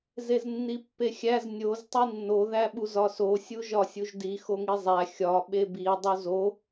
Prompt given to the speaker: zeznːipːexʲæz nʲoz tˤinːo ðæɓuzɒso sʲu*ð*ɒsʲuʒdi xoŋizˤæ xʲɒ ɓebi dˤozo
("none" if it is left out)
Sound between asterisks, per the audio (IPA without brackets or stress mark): ʒ